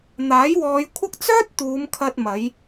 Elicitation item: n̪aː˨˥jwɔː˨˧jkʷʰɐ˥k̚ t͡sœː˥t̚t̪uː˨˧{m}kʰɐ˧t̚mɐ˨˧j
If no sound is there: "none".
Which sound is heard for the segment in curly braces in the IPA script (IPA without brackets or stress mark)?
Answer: m